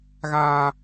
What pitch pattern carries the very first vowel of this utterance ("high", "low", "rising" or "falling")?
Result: high